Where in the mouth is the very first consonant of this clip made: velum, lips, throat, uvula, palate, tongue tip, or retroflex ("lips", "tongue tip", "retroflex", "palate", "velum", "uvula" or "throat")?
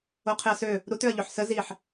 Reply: uvula